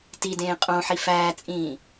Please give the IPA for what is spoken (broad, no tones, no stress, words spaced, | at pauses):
tidẽː qʼõħi fæːt͡sʼĩː